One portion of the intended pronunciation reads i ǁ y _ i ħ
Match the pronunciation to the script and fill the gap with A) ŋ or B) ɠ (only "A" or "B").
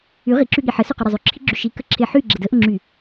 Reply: B